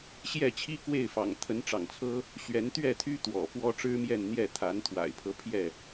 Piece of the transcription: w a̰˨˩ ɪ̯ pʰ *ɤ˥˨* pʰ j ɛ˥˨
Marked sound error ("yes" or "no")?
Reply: yes